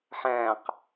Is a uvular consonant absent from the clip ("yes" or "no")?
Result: no